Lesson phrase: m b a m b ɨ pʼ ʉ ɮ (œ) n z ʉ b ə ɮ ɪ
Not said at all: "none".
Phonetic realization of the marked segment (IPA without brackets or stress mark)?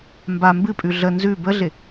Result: ə